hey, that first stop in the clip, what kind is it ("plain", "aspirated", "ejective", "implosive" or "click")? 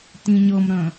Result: plain